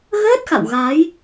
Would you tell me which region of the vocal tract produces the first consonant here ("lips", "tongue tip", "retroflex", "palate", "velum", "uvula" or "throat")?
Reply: velum